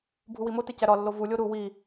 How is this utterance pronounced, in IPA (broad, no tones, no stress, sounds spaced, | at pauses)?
bʱ u w i m o t e c æ ɾ ɒ lː o v u lʲ o ɾ u w i